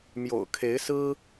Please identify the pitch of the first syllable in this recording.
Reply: low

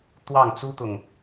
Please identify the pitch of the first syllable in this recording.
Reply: falling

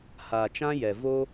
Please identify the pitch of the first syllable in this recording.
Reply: low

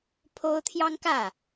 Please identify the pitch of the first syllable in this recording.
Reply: high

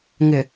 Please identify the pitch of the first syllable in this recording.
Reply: low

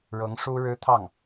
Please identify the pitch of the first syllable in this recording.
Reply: rising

